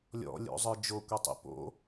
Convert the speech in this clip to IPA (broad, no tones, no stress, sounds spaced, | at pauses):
lʲ ɔ̰ lʲ o̰ zˤ ə˞ d͡ʒ o kʷ i tˤ ḭ p o̰